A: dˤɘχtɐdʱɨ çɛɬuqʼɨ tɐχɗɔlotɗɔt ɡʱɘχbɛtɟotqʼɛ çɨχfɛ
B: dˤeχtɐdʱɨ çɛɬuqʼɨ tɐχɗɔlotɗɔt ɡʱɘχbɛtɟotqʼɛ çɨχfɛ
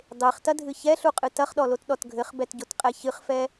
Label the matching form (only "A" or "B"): B